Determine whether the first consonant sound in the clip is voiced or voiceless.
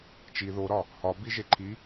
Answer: voiceless